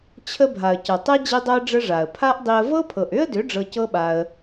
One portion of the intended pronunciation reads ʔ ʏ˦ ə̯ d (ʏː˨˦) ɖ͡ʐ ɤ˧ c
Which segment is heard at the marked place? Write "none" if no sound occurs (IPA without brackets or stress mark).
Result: ʏ˨˦